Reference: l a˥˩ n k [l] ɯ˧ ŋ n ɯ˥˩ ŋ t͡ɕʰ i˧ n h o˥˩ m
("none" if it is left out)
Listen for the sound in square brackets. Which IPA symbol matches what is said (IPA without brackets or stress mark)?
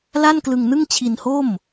l